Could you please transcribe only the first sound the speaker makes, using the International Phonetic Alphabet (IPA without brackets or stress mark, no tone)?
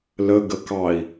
l